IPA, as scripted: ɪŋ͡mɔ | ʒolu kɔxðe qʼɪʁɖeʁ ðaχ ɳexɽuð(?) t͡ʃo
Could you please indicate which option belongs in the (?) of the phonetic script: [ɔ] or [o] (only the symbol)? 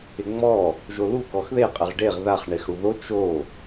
o